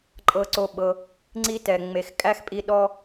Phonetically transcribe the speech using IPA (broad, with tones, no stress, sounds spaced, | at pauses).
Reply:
ǃʼ ɤ˧ ǀ o˧ ɓ ɤ˧ | ŋ͡ǀ i˦ t ɛ˨ ŋ͡m e˨ x kʼ æ˦ x pʼ i˧ ɗ ɔ˦